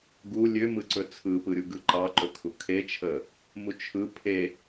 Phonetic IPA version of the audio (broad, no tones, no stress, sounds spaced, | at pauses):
ɡ u lʲ ø m ɯ ǀ ɵ t͡sʰ ɯ p ɯ ɾʲ u ɡ ɯ ǃ ɑ ǃ ɵ kʰ u kʰ e t͡ʃʰ ə | m u t͡ʃʰ ɯ pʰ e